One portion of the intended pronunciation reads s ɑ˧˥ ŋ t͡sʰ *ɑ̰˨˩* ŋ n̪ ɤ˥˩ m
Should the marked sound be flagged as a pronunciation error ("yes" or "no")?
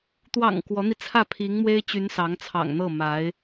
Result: no